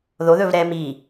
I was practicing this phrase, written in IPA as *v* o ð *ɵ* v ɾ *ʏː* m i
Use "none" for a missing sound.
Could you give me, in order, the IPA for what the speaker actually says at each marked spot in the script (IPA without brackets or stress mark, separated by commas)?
ð, ɵ, ɛː